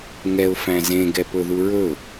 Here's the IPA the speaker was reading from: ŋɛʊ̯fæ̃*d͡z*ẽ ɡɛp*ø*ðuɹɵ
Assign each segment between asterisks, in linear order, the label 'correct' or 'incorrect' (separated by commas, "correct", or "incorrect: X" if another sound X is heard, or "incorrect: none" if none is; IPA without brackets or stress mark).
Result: incorrect: z, incorrect: ɵ